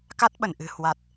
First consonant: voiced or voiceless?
voiceless